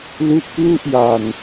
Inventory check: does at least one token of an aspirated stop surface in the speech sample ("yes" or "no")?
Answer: no